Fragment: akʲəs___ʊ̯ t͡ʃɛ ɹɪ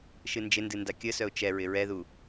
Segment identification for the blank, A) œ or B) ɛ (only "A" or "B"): A